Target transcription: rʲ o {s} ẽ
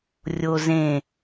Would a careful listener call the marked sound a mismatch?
yes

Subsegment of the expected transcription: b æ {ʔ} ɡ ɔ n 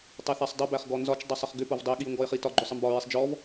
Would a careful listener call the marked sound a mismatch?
yes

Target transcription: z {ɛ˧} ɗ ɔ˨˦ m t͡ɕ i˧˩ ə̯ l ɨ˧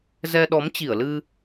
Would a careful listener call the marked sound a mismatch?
no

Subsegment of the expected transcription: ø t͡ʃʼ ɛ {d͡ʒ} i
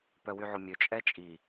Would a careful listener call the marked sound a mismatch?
yes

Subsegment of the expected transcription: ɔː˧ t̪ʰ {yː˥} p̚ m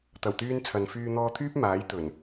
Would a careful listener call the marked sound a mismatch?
no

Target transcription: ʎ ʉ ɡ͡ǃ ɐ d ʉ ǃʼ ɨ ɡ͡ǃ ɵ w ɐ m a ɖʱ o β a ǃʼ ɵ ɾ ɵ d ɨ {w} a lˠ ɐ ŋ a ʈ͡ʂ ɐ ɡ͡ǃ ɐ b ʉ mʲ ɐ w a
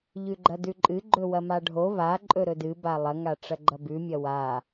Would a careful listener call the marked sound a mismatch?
yes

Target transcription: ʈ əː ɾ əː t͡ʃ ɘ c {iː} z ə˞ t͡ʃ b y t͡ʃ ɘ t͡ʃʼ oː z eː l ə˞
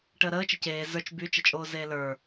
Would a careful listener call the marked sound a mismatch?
yes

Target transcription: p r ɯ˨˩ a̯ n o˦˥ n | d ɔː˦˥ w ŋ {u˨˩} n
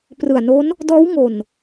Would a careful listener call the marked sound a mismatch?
yes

